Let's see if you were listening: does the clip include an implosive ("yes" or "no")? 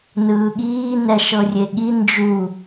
yes